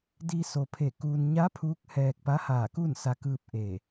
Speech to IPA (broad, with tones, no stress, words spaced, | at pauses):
di˧so˩ pʰe˧˩kuː˧n ɲa˧˥ pʰuː˧˥k̚hɛː˧k̚pa˧˥ haː˧˩ku˥˨nsa˧kɯː˧p̚ ʔe˧˩